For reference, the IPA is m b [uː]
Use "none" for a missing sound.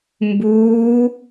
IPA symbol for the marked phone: uː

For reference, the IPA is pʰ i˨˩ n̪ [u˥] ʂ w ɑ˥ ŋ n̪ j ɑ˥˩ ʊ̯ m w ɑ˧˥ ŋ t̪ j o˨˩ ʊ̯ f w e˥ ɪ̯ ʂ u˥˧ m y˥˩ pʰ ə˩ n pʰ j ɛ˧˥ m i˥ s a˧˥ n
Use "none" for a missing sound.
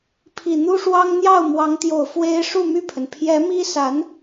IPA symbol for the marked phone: u˥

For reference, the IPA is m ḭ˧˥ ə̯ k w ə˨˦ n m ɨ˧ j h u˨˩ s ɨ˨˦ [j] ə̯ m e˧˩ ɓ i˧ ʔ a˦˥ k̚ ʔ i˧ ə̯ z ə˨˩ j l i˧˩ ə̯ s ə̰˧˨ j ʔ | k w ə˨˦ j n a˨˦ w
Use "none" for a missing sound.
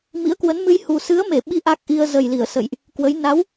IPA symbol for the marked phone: none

